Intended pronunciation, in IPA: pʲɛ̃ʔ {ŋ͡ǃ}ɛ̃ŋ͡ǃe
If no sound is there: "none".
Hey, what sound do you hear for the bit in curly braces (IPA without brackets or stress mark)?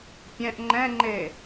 ŋ͡ǃ